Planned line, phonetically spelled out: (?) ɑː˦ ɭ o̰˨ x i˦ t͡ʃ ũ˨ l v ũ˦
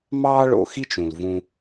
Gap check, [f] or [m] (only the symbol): m